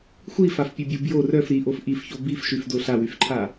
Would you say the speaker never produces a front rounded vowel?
no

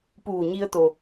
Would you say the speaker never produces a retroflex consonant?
yes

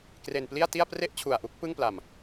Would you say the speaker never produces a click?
yes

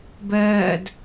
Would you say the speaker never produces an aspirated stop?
yes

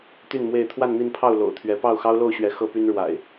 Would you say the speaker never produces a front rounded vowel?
no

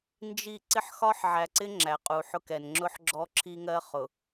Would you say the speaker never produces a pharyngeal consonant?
no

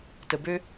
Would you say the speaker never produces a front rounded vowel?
no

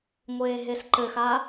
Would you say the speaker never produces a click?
no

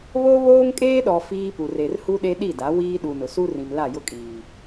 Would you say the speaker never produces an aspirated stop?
yes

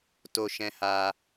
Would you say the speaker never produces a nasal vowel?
no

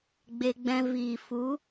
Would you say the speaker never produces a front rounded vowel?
yes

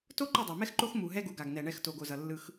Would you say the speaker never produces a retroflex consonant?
no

